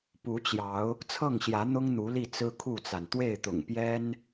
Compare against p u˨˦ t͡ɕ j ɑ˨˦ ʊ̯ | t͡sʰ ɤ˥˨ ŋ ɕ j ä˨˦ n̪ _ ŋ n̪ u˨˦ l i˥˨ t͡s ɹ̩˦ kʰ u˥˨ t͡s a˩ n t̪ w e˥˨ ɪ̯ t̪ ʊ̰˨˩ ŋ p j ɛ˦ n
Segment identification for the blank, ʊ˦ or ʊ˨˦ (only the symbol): ʊ˦